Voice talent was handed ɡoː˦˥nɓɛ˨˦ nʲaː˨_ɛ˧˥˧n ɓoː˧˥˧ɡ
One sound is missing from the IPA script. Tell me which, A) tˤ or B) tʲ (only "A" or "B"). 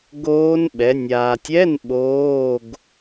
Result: B